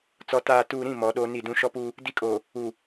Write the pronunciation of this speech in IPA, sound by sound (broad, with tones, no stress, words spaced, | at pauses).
t͡sɔ˨taː˨tuː˨ɾĩ˦˨ mɔ˨˦ɗoː˦ni˦˨ dũ˦ ʃɔ˦puː˦ | di˦kʼoː˨ | uː˨